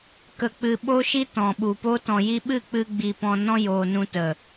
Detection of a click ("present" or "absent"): absent